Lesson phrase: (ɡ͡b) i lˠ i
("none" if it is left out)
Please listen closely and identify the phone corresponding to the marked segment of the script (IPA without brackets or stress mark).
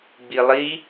ɡ͡b